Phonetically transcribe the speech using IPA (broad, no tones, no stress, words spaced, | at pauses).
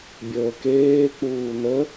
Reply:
bʲəːkeːk͡puː nə